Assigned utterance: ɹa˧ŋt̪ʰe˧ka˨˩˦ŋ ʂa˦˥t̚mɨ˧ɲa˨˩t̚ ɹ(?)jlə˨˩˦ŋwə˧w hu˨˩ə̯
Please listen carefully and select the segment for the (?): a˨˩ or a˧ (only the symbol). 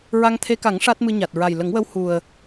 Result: a˨˩